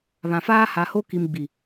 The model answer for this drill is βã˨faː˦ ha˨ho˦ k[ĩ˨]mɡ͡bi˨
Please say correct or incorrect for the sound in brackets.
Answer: incorrect: i˨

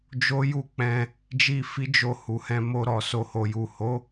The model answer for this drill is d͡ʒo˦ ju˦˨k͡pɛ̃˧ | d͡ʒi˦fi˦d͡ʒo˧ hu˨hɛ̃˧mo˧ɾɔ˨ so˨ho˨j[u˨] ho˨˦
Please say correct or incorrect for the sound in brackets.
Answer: correct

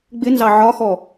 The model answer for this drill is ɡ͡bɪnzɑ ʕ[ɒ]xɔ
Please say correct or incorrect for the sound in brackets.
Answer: correct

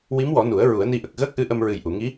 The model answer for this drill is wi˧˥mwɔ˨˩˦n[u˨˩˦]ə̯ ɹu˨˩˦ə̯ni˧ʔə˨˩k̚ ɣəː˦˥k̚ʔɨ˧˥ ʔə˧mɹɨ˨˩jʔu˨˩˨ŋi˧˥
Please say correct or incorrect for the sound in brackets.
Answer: correct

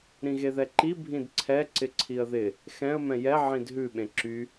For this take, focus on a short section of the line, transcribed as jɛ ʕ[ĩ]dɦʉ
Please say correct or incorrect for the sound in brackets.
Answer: correct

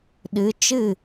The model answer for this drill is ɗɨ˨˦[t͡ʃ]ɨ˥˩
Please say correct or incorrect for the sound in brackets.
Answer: correct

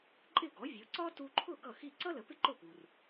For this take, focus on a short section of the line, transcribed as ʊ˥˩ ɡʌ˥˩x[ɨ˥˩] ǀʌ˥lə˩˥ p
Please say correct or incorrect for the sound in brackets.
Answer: incorrect: i˥˩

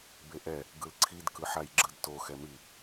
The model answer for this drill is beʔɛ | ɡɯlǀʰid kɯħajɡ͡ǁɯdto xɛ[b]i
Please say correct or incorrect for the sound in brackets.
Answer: incorrect: m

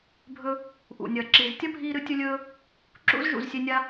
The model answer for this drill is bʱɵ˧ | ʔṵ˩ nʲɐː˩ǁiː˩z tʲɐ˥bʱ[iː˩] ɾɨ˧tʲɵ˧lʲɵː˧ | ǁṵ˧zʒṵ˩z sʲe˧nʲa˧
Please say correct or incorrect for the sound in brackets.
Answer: incorrect: iː˧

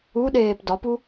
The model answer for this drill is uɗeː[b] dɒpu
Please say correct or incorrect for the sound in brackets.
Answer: incorrect: p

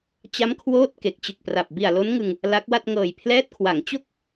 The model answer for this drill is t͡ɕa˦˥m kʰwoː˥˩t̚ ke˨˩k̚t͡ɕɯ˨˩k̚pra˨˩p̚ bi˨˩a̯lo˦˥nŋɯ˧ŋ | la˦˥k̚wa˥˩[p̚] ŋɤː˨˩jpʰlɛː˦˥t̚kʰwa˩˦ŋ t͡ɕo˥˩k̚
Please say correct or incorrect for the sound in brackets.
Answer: incorrect: t̚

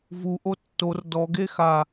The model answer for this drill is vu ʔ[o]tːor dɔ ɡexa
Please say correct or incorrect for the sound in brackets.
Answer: correct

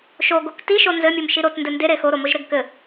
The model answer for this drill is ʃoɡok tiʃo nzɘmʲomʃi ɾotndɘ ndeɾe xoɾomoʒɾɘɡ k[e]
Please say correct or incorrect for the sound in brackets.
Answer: incorrect: ɘ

